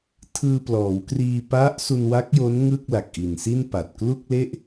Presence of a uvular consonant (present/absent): absent